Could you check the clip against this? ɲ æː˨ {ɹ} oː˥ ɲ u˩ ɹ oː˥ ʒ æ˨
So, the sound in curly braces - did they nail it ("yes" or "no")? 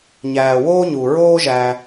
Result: no